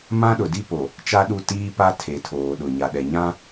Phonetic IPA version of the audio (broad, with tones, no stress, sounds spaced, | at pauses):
m ã˦ ɗ ʊ˨ d i˦ p o˨ | t͡ʃ a˦ ɗ u˦˨ t iː˦ p a˦ tʰ e˨ tʰ oː˨ ɗ ʊ˨ ɲ a˨ ɗ ɛ˨ ɲ ã˦